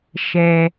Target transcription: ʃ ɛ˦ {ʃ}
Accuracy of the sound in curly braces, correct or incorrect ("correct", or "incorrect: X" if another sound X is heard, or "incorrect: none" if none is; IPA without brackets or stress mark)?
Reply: incorrect: none